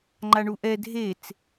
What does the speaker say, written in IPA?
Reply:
ŋ͡ǃ a ɳ u ʔ ɛ dʱ e t͡s

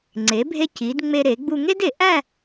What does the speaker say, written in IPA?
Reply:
ŋ͡ǀ e˩˧ bʱ e˧ c i˩˧ d ŋ͡m e˧ ɾ e˩˧ ɡ͡b u˧ ŋ e˥ d e˩˧ ʔ æ˥˧

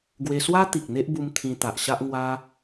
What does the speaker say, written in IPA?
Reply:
ɡ w e˧ s w a˦ t̪ i˨ k̚ n̪ e˦ ʔ b u˧ m t̪ʰ ĩ˧ t̪ a˨ ʔ ɕ a˦ ʔ ŋ w a˦

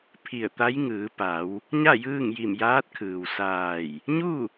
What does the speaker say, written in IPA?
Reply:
pʰ i˧˩ ə̯ t̪ a˧˥ j ŋ ɯː˩˧ p a˩˧ w | ɲ a˥˨ j ɯː˥˨ ŋ j i˧˩ m j aː˧˥ t̚ kʰ ɯː˩ w s aː˧˩ j | ɲ u˥˨

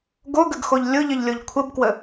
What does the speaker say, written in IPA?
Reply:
ɡ o ɡ ə ɡ x o ʎ lʲ ʊ ʎ ə ʎ lʲ o ʎ kʷʰ ə b k w ə

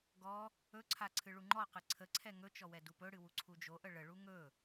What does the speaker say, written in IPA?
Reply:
ɡ ɔ | ɵ ǀʰ a ǀʰ ɨ ɭ u ŋ͡ǃ ɔ q ɨ ǀʰ ə ǀʰ ɛ ŋ ɵ t͡ʃ ɔ w ɛ d u p ɵ ɽ ɨ w u ǀʰ u d͡ʒ o ʔ ə ɭ ə ɭ u ŋ ɵ

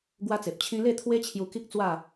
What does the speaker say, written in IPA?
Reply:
ɡ w a˦ t͡s e˨ p̚ t͡ɕʰ ĩ˦ l e˥˧ t̪ʰ w e˦ t͡ɕʰ j u˧ k i˦ k̚ t͡s w a˥˧

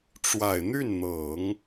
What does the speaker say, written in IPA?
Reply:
ʈ͡ʂ w a˨˩ ɪ̯ n̪ y˥˩ n n̪ ɤ˨˩˦ ŋ

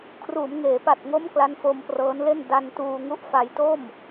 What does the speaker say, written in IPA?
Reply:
kʰ r uː˩˦ m ŋ eː˩˦ p a˨˩ t̚ ŋ o˦˥ m k l a˦˥ n f o˧ m p r ɤː˦˥ n l e˥˩ n d a˧ n t uː˧ ŋ u˦˥ ʔ f a˧ j t o˥˩ m

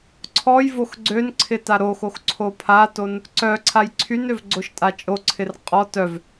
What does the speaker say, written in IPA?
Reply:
ǀʰ ɔ j v o x ɡ͡ǀ ø n ǀʰ ɪ t a ɾ o x o x ǀʰ o pʰ a t o n | ǀ œ ǀʰ a j ǀʰ y n ø v ɡ͡ǀ o ʃ tʼ a t͡ʃʼ o ǀʰ ɪ r qʼ ɔ t œ v

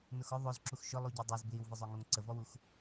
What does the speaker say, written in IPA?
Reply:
n ʊ x ʊ ðˤ o z ǁ u x ʃ ʊ lˠ u ɟ o dˤ o z b l i w v ə zˤ o ŋ o ŋ ǀ ə v ɔ w u x

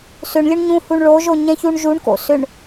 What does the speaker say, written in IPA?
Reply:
s ʏ ɳ lʲ ʊ ɳ ɲ ũ h u ɳ ɭ o ʒ o ɲ ɛ̃ ç u ɳ ʒ u ɳ k o̰ s ʏ ɳ

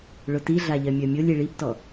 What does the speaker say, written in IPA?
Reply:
ɭ ʊ t i ɮ a ʎ ɜ mʲ ɜ mʲ o lʲ i ɭ i b t ɔ

